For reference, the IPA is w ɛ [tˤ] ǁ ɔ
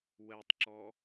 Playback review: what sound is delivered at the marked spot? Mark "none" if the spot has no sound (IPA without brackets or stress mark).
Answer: tˤ